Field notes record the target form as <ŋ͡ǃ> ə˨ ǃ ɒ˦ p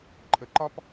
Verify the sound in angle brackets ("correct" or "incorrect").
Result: incorrect